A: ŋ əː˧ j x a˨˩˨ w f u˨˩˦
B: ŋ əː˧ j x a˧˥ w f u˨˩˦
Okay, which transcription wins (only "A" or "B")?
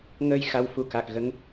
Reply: B